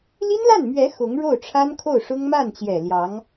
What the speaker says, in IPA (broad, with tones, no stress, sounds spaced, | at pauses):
l i˥ n l a˥˩ n m ɥ ɛ˧˥ x ʊ˧˥ ŋ ɻ o˥˩ ʊ̯ ʈ͡ʂʰ a˥ n kʰ o˥˩ ʊ̯ ʂ ʊ˥ ŋ m a˥˩ n t͡ɕ j ɛ˨˩ l j ɑ˧˥ ŋ